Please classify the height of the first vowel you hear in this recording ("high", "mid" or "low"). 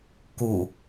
high